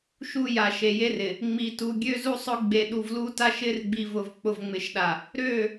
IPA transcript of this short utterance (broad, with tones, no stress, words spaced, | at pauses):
ʃu˦ja˨ ʃe˨je˦r ɪ˨ | ŋ͡mi˨tu˨ ɡʲø˦zu˦sˤʊ˦ ɡ͡be˨ɗu˨v lu˦ta˦ʃ ɪ˦r ɡ͡bi˨vʊ˨v k͡pʊ˨vŋ͡mɪ˨ʃɗa˨ | ɾø˦˨